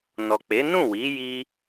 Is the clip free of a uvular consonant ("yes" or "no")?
yes